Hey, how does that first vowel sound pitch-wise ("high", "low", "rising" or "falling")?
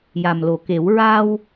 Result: low